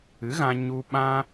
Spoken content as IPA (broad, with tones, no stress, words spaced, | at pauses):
ɨ˨˦ɣã˧ ɲu˧ɓã˦